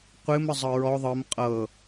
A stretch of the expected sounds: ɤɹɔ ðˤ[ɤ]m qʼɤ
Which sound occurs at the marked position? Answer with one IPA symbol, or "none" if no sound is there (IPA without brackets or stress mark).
ɤ